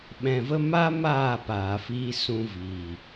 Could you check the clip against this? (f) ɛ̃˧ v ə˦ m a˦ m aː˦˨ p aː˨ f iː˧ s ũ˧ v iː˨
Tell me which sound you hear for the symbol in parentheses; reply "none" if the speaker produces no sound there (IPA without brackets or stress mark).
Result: ɓ